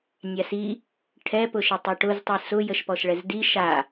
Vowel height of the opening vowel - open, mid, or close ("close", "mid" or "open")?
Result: open